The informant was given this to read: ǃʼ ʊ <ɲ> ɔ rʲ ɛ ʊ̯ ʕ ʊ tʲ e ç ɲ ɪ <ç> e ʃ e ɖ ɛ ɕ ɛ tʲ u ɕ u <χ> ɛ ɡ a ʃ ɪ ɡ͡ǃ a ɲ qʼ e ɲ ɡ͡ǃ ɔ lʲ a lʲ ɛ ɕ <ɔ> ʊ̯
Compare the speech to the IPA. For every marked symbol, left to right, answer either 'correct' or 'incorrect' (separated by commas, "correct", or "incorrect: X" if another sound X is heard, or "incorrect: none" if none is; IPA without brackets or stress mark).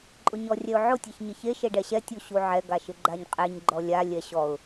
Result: correct, correct, incorrect: ʕ, correct